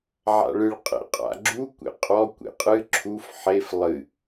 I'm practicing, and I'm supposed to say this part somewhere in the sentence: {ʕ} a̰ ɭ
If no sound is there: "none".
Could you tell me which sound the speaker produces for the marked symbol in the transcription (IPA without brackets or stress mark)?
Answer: ʕ